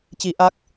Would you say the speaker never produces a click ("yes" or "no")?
yes